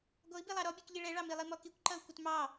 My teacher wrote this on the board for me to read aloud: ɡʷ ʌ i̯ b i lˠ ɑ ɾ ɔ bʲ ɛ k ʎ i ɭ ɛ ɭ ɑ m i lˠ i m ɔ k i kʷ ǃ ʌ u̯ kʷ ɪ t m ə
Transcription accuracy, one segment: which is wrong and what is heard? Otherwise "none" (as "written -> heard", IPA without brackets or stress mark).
ə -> ɑ